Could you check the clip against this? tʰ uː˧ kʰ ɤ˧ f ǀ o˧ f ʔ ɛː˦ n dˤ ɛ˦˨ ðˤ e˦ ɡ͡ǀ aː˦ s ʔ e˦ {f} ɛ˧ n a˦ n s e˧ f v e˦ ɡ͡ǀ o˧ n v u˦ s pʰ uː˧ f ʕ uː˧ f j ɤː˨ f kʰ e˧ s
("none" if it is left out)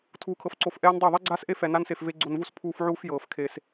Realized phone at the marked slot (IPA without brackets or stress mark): f